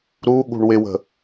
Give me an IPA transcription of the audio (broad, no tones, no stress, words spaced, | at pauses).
ɾu ɠṳɳwɪwə̤